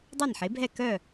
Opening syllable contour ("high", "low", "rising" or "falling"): falling